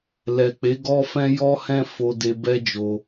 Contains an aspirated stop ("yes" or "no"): no